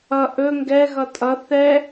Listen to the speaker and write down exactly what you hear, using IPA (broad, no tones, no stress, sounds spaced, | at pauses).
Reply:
ʌ ʔ ɵ ŋ ɡ ɛ ɣ ʌ tʼ ʌ θ ɛ